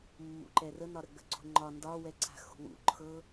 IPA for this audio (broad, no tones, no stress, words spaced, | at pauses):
mːṵǃɛrənɒ ɾəɡ͡bə̤ǀṳ ŋ͡ǃɒ ndɒwɛ ǀa̤xṳwṵ ǃʰɤ